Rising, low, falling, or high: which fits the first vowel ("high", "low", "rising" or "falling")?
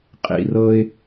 low